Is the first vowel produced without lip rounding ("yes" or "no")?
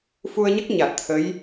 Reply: no